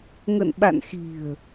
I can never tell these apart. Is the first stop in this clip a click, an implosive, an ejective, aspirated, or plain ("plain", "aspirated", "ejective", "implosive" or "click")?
implosive